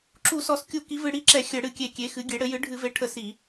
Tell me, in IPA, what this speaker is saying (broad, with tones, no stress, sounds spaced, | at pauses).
ǁ u˧˩˧ s ɔ˧˩˧ s kʲ u˧˩˧ k i˩˥ v ɨ˧˩˧ ɽ i˧˩˧ ǁ ɛ˧˩˧ xʲ ɘ˧˩˧ ɽ ɨ˧˩˧ kʲ e˧˩˧ kʲ e˩˥ x ɨ˩˥ ɡʲ e˩˥ ɽ ɘ˩˥ j ɨ˩˥ ɖʱ ɨ˧˩˧ v e˩˥ ʈʰ ə˧˩˧ s i˧˩˧